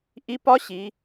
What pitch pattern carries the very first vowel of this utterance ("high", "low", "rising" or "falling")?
rising